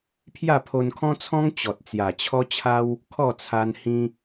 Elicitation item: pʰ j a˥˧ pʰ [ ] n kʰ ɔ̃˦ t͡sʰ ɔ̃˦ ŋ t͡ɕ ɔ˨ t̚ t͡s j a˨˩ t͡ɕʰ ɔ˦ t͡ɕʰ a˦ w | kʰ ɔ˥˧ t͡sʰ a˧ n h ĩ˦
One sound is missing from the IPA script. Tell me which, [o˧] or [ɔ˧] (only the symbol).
o˧